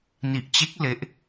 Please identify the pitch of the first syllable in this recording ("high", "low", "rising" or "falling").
low